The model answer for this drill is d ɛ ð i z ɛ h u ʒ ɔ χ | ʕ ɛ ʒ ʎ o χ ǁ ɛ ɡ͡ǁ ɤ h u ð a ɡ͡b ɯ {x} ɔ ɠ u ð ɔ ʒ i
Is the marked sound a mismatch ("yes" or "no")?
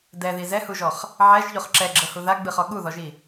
yes